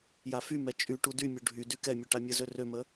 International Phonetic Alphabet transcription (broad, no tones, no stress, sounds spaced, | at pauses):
j a f y m ɛ t͡ʃʼ y ʈ u d y mʲ u ɖʱ y d y k ɛ mʲ u ʈ a mʲ ə z ø r ø m ə